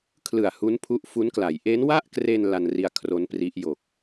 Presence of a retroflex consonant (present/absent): absent